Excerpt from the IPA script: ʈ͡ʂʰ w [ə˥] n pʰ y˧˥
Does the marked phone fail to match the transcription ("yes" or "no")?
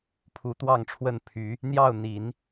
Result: yes